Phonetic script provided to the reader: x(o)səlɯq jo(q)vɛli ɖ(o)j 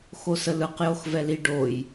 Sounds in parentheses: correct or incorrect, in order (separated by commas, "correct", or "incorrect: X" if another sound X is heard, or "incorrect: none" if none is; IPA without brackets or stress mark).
correct, incorrect: x, correct